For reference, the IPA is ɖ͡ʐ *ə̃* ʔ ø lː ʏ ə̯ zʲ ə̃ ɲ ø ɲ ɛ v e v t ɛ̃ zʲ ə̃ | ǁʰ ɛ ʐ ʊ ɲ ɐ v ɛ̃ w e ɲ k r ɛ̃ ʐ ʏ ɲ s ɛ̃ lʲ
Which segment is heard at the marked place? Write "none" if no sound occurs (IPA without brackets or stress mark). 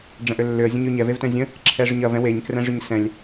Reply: ə̃